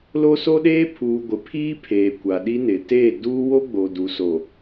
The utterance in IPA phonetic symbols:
lo˦so˦ɗeː˦ pʰuː˨ ɡʷɪ˨pʰiː˦pʰeː˨ kʷa˨ɗi˦nɪ˨ teː˦˨ duː˦wo˦ ɡ͡bo˨du˨ so˨

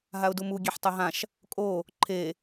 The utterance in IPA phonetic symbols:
ɦaʊ̯dumu ɡʲeħtˤaɦãʃ | kʼo | ǃʰe

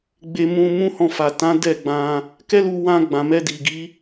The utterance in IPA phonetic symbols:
ɡ͡be˧ mũ˧ mũ˦hɔ̃˧ fa˨tã˨˦ dɛ˦˨ɡ͡bã˧ | kɛ˦lu˧wã˧ ɡ͡bã˨mɛ˧di˨ɡi˨˦

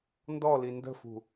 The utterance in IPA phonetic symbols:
ndɔli ndə̤fṳ

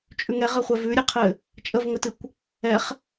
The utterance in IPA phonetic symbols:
t͡ʃʼʉŋɛʁɘχʷɛv ʉɾʲɨqʰɘ | t͡ʃʼəvŋətɨkʷ | ɛχ

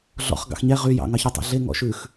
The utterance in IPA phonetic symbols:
ɮɔ̰χ ɡɑ̰xɲɛ ʁy jɑ̰ ŋɑçytˤḭɮe ŋɔ̰ʃʉx

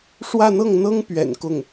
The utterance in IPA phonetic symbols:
ʂwä˥˧n̪ɤ˥˩ŋn̪ɤ˥ŋpɥɛ̰˨˩n kʊ˥˩ŋ

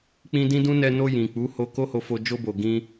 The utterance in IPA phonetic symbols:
k͡pĩ˧dĩ˦dũ˦ nɛ˧no˧ jĩ˨k͡pu˨˦ho˧ ko˦ho˧fo˧ d͡ʒo˧bo˨ɡĩ˧

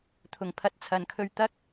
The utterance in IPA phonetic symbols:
t̪ʰʊ˨˩ŋ pʰɐ˨˥t̚t͡sʰɐ˨nkʰɵ˧ɥ t̪ɐ˥k̚

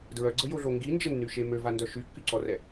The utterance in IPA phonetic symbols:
dɹœɡ͡ǀəjoɮo ŋɡind͡ʒənːyʃe møvandœ ʃykːyǀɔrɛ

